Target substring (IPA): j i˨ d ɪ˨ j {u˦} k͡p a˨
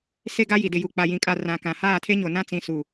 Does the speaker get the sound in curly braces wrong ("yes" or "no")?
yes